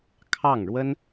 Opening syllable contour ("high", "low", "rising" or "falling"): falling